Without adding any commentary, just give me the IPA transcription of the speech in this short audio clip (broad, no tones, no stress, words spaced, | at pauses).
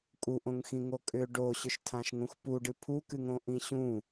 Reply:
kʼuʔõŋxĩŋo kʼʏ ɖoɕʏʃtʰãʃŋũx puɖɨ pʰukɨŋõʔĩ ɕũ